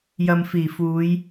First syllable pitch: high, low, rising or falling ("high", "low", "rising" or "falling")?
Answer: low